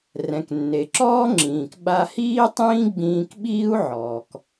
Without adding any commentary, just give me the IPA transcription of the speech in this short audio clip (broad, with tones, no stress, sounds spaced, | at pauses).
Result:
r ɛ̃˩ k nː e˩ ǁ ɔː˥ ŋ͡ǁ ĩː˩ k ɓ a˧ h iː˥ tˤ ĩː˥ ɡ͡b ĩː˧ k ɓ iː˥ u̯ ʕ ɔː˩ k